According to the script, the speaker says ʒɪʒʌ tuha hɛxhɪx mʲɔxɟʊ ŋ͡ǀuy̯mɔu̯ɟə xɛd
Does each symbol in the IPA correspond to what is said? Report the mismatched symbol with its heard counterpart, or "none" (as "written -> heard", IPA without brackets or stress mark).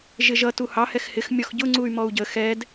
a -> ɑ